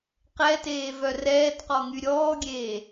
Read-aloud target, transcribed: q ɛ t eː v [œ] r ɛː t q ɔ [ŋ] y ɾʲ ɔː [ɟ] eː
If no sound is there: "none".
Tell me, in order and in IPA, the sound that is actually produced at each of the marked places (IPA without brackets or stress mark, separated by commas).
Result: œ, ŋ, ɡʲ